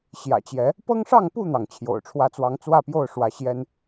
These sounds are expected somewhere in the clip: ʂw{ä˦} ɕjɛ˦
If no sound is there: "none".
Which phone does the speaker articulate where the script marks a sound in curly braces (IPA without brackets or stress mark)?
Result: ä˨˦